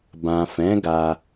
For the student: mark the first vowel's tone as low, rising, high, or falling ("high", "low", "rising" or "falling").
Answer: low